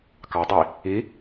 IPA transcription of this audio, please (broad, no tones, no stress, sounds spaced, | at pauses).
k ɑ dˤ i | i